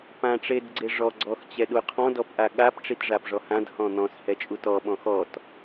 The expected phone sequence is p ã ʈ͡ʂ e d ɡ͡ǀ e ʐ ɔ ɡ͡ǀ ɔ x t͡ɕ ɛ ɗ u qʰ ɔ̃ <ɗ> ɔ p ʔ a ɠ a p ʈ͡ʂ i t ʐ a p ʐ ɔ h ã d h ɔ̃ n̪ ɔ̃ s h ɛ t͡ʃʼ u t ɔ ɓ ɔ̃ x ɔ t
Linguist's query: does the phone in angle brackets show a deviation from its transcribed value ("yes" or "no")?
yes